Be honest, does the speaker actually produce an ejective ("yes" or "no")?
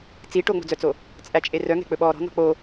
yes